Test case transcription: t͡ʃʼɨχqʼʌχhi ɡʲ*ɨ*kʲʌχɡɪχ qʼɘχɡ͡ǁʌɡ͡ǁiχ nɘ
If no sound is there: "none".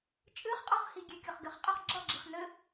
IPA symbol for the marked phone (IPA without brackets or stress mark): e